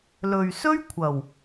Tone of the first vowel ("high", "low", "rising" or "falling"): low